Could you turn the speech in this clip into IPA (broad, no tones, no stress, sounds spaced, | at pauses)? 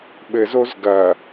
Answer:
ɓ ɘ z o z ɡ ɐ